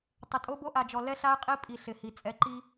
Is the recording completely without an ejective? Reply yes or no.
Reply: no